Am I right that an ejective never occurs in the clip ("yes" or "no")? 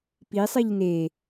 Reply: yes